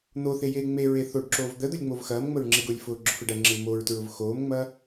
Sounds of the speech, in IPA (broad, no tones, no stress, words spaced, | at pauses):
n̪oθejeː ŋ͡meɹe θoɖǁoːv d̪əd̪ʊlʲŋ͡mov xɐːmŋ͡məɹŋ͡ǁeɡʊːlʲ fʊːɡ͡ǁʊfeɖ ɐŋ͡ǁel moɹtɹʊv xoːmŋ͡mɐ